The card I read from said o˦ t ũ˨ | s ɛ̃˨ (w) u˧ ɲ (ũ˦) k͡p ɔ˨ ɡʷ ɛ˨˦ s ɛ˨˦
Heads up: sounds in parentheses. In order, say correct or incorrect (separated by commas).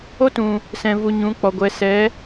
incorrect, incorrect